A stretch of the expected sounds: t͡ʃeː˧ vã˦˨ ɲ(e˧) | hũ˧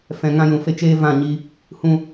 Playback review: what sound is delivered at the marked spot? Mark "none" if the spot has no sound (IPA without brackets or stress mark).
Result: i˧